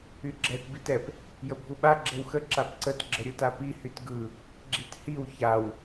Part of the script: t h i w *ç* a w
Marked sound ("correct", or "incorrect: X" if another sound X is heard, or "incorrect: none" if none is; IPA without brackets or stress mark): correct